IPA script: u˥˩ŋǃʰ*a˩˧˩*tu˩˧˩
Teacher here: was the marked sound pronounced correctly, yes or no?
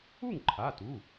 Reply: yes